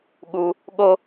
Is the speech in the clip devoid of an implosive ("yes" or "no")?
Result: no